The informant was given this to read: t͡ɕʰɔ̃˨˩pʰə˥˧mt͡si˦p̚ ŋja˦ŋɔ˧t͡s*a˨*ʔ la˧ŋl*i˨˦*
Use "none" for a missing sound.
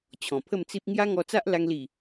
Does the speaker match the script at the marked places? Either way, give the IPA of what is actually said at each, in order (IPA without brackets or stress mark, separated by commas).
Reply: a˦, i˨˩